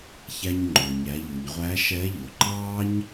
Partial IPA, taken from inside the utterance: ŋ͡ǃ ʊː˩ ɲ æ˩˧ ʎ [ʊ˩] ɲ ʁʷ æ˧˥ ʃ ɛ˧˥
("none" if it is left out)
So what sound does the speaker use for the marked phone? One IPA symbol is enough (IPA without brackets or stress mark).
u˩